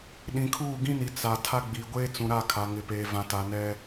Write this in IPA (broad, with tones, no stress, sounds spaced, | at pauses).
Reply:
ɗ ĩ˨ kʰ uː˦˨ ɡ ĩ˦ n i˨ t͡s a˨ tʰ a˦ ɡ͡b i˨ ɡʷ eː˦ t͡s ũ˨ ɾ a˦˨ kʰ a˨ ŋ ɪ˨ p eː˨ v ã˨ t a˨ n ɛ˦